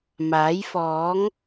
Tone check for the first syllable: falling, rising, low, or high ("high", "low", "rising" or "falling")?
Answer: rising